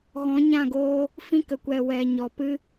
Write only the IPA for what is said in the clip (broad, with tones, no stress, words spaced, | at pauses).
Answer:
ɣɔ̃˨˦ɲã˦˨ ɡoː˦ | fĩ˧kə˨kʷɛ˨ wɛ˨ ɲɔ˨pɨ˦